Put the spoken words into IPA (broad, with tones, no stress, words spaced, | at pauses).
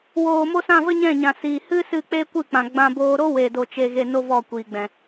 woː˨ mo˧sã˦˨ və˦ɲɛ̃˦˨ ɲã˨ siː˨ hɨ˦ sɨ˦˨k͡pe˦ kʷɨ˦˨k͡pã˨ɡ͡bã˧ boː˧ ɾo˦we˨do˨ t͡ʃe˧ɣe˧ no˦vɔ˦˨kʷiː˨ɡ͡bɛ̃˨